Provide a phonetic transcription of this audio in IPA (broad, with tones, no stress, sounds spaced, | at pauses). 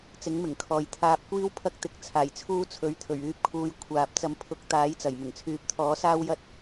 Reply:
t͡s ɪ˨˥ ŋ m ɪ˨˩ ŋ kʰ ɔː˨ j t̪ʰ aː˧ p̚ kʷ iː˥ w pʰ ɐ˥ k̚ t̪ ɪ˨˥ k̚ t͡sʰ aː˨˩ j t͡sʰ uː˥ t͡sʰ ɵ˨˥ ɥ t̪ʰ ɵ˨˩ ɥ yː˧ p̚ kʰ uː˧ j kʷʰ aː˨ p̚ t͡s ɐ˨˥ m pʰ ʊ˨˥ k̚ t̪ aː˨˥ j t͡s ɐ˨˩ j m ɪ˨˩ ŋ t͡sʰ yː˨ p̚ t̪ʰ ɔː˨˥ s aː˥ w j ɐ˥ t̚